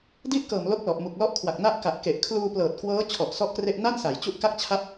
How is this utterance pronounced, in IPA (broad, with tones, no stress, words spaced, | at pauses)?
di˥˩ʔkɤː˨˩m lo˥˩k̚lɔ˨˩ʔmu˨˩k̚ lɔ˦˥ʔkʰwa˨˩k̚ na˥˩ʔka˨˩ʔke˨˩ʔ kʰluː˧plɤː˨˩t̚kwɤː˦˥ t͡ɕʰɔ˨˩ʔsɔ˥˩ʔkre˥˩ʔ na˥˩nsa˩˦jt͡ɕu˦˥ʔ ka˥˩k̚t͡ɕʰa˥˩p̚